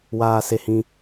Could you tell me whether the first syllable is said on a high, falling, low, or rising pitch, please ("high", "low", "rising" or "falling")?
high